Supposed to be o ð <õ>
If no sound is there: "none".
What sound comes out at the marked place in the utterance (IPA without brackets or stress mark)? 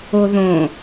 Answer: õ